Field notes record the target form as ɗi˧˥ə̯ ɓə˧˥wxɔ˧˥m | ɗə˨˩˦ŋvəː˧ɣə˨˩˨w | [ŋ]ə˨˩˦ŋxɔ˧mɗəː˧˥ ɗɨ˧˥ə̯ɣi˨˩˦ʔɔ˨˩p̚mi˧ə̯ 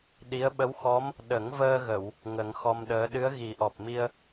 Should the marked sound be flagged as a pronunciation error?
no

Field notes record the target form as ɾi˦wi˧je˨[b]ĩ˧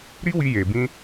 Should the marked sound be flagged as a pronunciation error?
no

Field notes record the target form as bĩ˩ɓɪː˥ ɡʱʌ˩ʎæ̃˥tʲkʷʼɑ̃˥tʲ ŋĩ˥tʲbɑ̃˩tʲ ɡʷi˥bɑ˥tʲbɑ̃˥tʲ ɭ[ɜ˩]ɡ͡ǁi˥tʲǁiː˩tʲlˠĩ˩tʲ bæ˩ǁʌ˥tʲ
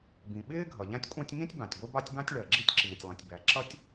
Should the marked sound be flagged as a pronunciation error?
no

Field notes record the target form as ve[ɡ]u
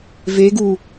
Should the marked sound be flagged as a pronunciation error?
no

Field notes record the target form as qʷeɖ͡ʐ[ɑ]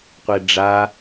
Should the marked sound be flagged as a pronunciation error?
yes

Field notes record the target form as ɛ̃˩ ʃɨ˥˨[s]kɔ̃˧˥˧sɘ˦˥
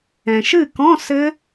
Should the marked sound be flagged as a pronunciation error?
yes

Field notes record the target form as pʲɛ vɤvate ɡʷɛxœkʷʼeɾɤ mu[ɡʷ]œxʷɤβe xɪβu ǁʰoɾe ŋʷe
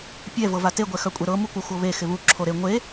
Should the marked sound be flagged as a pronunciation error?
yes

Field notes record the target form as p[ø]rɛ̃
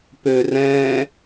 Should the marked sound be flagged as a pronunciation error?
no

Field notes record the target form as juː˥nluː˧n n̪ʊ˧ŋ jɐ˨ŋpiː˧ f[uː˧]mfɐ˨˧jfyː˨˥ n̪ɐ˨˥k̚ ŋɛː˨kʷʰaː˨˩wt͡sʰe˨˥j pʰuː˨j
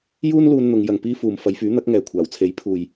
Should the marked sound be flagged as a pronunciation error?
yes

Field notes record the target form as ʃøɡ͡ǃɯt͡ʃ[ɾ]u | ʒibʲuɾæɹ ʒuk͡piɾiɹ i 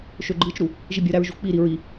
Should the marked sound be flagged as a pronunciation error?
no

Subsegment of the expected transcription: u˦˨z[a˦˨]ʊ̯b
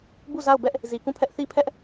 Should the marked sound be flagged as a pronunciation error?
no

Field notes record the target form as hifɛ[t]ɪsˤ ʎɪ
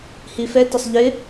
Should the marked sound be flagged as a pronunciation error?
no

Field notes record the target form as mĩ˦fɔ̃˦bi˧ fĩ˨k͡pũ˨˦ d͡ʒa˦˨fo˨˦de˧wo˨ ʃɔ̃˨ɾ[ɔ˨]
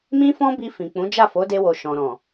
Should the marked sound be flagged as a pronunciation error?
yes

